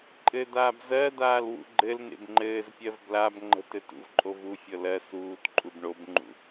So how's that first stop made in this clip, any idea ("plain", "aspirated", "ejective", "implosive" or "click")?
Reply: click